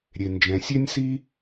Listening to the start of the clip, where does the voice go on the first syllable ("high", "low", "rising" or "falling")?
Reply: low